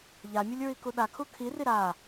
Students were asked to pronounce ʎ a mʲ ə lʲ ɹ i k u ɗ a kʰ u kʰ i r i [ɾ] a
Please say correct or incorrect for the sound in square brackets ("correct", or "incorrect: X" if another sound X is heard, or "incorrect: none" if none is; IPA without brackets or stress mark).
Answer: correct